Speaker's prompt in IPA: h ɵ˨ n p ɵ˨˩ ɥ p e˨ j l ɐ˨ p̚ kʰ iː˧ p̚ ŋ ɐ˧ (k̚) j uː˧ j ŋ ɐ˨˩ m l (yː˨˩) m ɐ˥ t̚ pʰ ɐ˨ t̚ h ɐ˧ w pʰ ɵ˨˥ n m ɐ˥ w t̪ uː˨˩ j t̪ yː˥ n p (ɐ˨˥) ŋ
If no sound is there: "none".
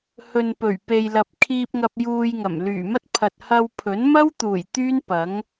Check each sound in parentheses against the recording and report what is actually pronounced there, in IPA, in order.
p̚, yː˨˩, ɐ˨˥

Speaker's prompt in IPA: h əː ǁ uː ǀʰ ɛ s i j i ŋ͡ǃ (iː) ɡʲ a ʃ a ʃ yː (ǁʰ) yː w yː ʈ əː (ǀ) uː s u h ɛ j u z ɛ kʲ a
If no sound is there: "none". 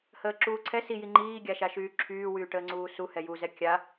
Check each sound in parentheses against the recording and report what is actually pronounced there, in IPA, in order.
iː, ǁʰ, ŋ͡ǀ

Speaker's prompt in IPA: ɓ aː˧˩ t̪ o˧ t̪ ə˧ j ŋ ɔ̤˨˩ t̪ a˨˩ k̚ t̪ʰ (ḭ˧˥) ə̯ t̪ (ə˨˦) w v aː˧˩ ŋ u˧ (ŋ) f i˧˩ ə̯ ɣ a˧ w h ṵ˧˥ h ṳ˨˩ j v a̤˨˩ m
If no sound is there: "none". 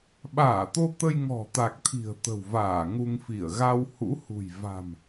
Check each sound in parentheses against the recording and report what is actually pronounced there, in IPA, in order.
i̤˨˩, ə̤˨˩, ŋ

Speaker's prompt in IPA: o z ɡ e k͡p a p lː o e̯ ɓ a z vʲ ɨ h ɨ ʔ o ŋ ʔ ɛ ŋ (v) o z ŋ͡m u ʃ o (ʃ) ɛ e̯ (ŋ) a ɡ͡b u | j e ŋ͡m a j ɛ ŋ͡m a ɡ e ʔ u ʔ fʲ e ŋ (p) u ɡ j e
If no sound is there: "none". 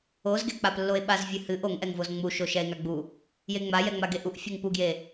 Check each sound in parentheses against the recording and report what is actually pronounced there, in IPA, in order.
v, ʃ, ŋ, p

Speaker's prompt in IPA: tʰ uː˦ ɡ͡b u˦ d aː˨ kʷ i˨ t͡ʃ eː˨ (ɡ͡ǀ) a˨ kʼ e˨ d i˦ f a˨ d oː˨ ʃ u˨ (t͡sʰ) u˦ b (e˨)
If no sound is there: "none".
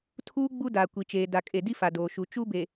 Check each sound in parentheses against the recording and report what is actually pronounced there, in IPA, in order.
d, t͡ʃ, e˨

